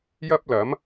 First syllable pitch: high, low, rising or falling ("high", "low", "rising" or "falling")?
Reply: high